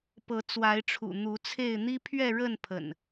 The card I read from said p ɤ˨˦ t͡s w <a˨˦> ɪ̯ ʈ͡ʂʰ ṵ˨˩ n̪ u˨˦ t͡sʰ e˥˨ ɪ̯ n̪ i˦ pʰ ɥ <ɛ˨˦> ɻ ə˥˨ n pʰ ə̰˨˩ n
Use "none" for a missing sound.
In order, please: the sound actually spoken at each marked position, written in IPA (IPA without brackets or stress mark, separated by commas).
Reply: a˨˦, ɛ˥˨